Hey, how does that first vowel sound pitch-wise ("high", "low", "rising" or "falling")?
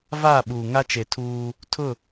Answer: falling